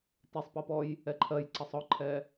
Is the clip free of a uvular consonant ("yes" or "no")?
yes